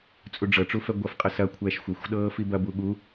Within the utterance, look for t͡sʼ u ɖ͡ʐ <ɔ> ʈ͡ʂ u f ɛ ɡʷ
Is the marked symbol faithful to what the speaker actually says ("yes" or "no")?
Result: no